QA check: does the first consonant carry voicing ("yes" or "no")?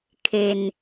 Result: no